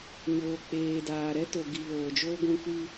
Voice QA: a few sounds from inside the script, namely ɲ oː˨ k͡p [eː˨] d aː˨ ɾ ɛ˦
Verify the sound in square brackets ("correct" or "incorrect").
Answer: correct